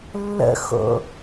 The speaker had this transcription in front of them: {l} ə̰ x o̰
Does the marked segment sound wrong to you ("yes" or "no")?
yes